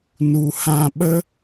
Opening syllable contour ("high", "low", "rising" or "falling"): low